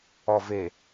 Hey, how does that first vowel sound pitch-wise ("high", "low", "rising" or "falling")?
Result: low